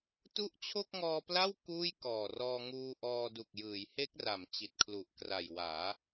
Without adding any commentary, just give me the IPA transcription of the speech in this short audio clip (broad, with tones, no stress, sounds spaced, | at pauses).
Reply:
t u˦˥ ʔ t͡ɕʰ o˥˩ k̚ ŋ ɔː˧ p l a˥˩ w k uː˥˩ j k ɔː˨˩ r ɔː˧ ŋ uː˧ ʔ ɔː˧ d u˨˩ k̚ j ɯː˩˦ j h e˦˥ k̚ r a˩˦ m t͡ɕ i˨˩ t̚ kʰ l u˨˩ ʔ k r a˨˩ j w aː˩˦